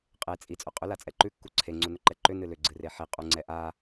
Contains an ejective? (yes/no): yes